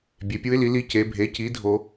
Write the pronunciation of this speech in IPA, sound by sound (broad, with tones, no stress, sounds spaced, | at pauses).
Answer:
bʲ e˩˧ pʲ u˧˥ ɪ̯ l i˩˥ l i˧˥ c e˩˧ bʱ e˩˥ c i˩˥ dʱ o˧